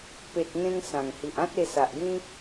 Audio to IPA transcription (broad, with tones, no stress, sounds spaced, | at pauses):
p e˨ t̚ ŋ ẽ˧ ŋ s ã˨˩ ŋ h i˨ ʔ ã˦ t̚ e˧ s a˨ ʔ ɡ ĩ˦